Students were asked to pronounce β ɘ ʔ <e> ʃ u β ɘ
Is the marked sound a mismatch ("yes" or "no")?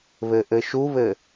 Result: yes